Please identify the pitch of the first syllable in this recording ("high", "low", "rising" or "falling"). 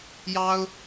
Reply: high